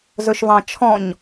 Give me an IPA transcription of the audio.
z ɵ ʃ v ɑ̃ t͡ʃʰ ɔ̃ ɲ

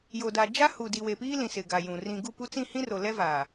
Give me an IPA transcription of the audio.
j o˨ d a˨ d͡ʒ a˦ h u˨ d i˨ w e˨ p iː˦ l ĩ˨ s ɪ˨ ɡ a˨ j ũ˨ r ĩ˨ ɡ u˦˨ p u˦ t͡s ĩ˦˨ h ĩ˦ r o˨ l ɛ˦ v aː˨

